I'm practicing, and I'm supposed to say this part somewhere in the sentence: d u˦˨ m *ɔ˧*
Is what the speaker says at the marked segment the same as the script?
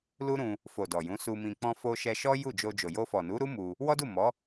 no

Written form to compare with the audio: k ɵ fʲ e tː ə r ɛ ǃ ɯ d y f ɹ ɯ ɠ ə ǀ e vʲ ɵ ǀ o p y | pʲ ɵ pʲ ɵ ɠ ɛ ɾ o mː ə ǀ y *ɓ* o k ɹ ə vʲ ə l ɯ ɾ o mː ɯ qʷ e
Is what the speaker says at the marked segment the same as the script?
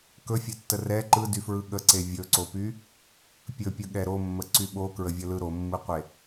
yes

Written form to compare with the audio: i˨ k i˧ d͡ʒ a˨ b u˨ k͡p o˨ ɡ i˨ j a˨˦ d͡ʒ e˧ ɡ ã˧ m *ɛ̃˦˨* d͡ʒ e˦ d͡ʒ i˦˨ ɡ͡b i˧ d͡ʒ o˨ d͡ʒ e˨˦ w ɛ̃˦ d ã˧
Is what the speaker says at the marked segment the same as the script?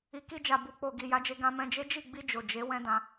no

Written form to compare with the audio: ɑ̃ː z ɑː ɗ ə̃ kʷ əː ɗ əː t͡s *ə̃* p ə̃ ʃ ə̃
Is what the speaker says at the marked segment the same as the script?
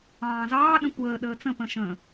yes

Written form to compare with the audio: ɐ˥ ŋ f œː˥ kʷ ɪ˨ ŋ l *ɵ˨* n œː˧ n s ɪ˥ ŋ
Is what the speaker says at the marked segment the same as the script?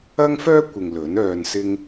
no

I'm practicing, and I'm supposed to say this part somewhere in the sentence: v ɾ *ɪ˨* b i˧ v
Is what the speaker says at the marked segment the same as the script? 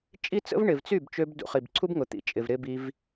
no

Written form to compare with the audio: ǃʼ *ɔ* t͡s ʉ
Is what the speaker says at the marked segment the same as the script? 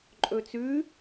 no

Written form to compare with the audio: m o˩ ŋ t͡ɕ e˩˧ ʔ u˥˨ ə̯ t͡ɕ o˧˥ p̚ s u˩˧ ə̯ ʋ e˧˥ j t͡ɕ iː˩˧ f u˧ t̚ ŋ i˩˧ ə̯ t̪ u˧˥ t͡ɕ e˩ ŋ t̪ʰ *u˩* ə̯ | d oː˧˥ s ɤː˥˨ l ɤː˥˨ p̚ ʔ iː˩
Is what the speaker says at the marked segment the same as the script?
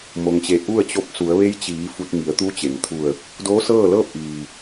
no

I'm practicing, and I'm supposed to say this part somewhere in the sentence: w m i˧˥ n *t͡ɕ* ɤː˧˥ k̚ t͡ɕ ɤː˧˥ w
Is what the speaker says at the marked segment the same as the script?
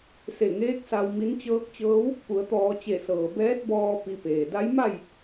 yes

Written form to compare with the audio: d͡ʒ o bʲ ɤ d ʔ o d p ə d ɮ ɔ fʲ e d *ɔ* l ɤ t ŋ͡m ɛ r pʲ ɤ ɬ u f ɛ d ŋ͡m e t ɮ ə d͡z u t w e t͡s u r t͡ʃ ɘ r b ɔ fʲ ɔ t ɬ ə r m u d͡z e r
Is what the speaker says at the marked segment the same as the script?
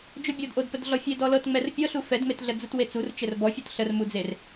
yes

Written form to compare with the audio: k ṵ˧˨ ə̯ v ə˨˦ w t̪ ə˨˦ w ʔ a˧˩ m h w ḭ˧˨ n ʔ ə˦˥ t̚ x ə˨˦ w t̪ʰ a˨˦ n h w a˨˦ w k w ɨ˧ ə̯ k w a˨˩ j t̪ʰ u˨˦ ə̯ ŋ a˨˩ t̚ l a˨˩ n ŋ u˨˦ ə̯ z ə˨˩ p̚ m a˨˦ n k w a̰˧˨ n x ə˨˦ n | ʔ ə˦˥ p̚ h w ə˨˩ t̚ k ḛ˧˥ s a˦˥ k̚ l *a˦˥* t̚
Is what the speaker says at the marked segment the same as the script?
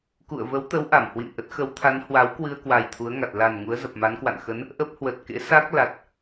no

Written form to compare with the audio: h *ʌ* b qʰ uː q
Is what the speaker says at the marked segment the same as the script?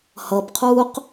yes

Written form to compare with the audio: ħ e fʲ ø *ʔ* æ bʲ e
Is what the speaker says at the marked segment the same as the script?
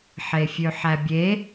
no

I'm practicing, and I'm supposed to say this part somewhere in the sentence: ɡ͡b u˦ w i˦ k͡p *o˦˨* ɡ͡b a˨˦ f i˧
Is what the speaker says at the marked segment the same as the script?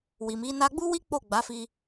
yes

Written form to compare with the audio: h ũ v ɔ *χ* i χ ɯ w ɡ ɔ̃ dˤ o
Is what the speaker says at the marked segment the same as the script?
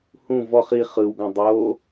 yes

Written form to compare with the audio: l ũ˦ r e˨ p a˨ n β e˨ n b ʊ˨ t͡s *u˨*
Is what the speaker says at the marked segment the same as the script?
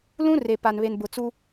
no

